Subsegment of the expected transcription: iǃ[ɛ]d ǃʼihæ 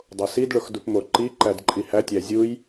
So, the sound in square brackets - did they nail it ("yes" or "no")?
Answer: no